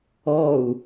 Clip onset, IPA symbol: ɔ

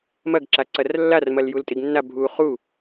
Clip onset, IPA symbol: m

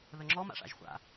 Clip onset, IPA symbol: ð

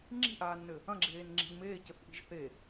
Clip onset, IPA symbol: ŋ͡ǁ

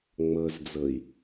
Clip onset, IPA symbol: ŋ͡m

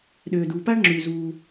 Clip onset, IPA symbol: ɗ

